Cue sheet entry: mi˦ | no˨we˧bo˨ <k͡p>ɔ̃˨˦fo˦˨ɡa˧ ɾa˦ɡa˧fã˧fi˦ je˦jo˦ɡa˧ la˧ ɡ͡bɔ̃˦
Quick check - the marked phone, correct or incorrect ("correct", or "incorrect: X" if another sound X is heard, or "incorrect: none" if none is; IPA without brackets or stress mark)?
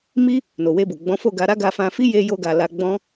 incorrect: ɡ͡b